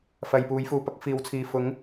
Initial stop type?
plain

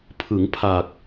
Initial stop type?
aspirated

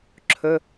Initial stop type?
click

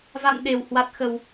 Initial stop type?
implosive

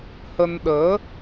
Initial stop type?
implosive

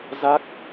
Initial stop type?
plain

